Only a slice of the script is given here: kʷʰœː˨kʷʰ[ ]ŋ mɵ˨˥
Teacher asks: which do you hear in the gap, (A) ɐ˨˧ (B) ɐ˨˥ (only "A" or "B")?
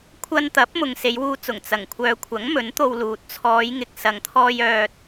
B